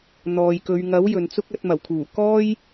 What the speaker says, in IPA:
n̪ ɔː˨ j k ɵ˨˧ ɥ ŋ ɐ˨˥ w j ɵ˨ n t͡s ʊ˥ k̚ ɐ˧ t̚ m ɐ˨˩ w kʰ uː˨˩ k ɔː˥ j

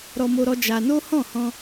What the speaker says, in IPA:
ɾ ɔ˧ m o˦ ɾ ɔ˦ d͡ʒ a˧ n o˦ h ɔ̃˦˨ h ɔ̃˧

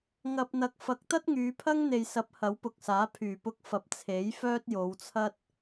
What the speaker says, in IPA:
ŋ ɐ˨ p̚ n̪ ɐ˨˥ k̚ f ɐ˨˥ k̚ t̪ ɐ˥ t̚ ŋ yː˨˧ pʰ ɐ˥ ŋ n̪ e˨ j s ɐ˨˥ p̚ h ɐ˨˥ w p ʊ˨ k̚ s aː˨˥ pʰ yː˨˩ p ʊ˧ k̚ f ɐ˨˥ p̚ t͡sʰ e˨˥ j f œː˥ t̚ j o˨˧ w t͡sʰ ɐ˥ t̚

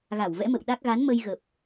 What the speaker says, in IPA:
ɣ a˧˩ w v ɛ̰˧˥ m ə̰˧˨ w ɗ a˦˥ k̚ ɣ a˨˦ n m ə˧ j ɣ ə˨˩ p̚

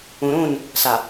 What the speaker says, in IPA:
ũ˨ ɾ ũ˦˨ n | s a˨

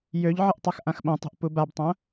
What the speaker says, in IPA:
j ø ʎ ʕ ə ʔ tˤ a x ʔ ã x ɓ ɐ̃ tˤ e̤ ʔ p u b a b tˤ ɐ̃

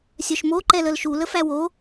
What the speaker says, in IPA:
sʲ œ ʃ m o ǃ ɛ l ə l ʃ u l ə f æ w o

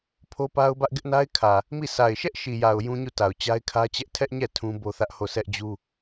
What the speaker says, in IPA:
pʰ o˦ p a˦ ʊ̯ b ä˦ ʔ ɡ ɪ˦ ʔ n a˦ ɪ̯ kʰ ä˨ | m i˦˨ sʰ a˨ ɪ̯ ʃ ɛ˦ ʔ ʃ i˨ j a˨ ʊ̯ j ũ˦ ɲ u˦˨ t a˨ ʊ̯ t͡ɕ a˦ ɪ̯ kʰ ä˦ t͡ɕ ɛ˦ ʔ tʰ ɛ˦ ʔ ɲ ɛ˦˨ tʰ ũ˦ b o˦ θ ä˦ ʔ h o˦˨ sʰ ɛ˦ ʔ d͡ʑ u˦

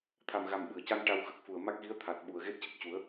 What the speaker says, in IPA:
t̪ʰ a˨˩ m ɣ a˨˩ m ɓ ɨ˨˩˨ ə̯ c a˧ n ʈ a˧ w x ə˦˥ k̚ f u˨˩ ə̯ m a˦˥ k̚ ɣ i˧˥ ə̯ t̪ʰ a˨˩ t̚ ɓ u˨˩ ə̯ ɣ e˦˥ t̚ c ə˨˩ k̚ c u˨˩˦ ə̯

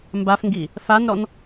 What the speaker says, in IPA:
m b a f ŋ ɡ i | f a n ɾ ɔ n

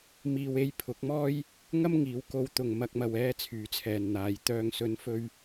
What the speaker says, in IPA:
m iː˨ w e˧ j pʰ ʊ˨˥ k̚ m ɔː˥ j | ŋ ɐ˥ m ŋ iː˨˥ w k o˧ w t̪ ʊ˨ ŋ m ɐ˨ k̚ m ɐ˨ w ɛː˧ t͡sʰ yː˨˥ t͡sʰ ɛː˨ n n̪ aː˨˧ j t̪ œː˨ ŋ s ɵ˨˧ n f ɵ˧ ɥ

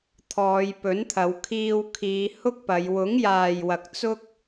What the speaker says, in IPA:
t̪ʰ ɔː˨˧ j p ɵ˨˥ n t̪ʰ ɐ˨˧ w kʰ iː˧ w kʰ iː˨˧ h ʊ˥ k̚ p ɐ˨˧ j w ʊ˨˥ ŋ j aː˨ j w ɐ˨ k̚ t͡s ʊ˥ k̚

